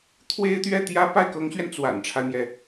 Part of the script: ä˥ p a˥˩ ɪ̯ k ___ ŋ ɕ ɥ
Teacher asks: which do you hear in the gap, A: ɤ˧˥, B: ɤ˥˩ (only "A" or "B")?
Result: A